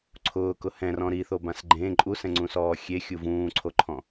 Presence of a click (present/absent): present